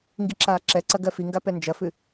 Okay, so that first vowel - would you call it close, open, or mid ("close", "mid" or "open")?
close